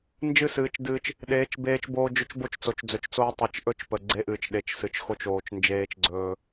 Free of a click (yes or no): no